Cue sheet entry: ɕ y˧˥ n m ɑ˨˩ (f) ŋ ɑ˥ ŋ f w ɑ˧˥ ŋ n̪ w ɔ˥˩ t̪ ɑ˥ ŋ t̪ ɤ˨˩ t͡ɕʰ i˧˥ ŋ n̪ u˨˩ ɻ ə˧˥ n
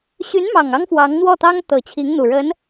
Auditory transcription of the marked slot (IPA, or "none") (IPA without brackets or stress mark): none